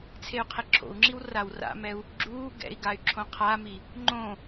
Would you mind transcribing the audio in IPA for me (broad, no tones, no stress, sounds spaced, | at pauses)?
t͡sʰ e y̯ qʰ e ǁʰ o̰ u̯ ŋ͡ǁ i w r a w r a̰ m ɛ u̯ | ɡ͡ǁ uː ɡ ɛ̰ i̯ ɡ a y̯ ǁʰ õ qʰ a m i | ŋ͡ǃ õ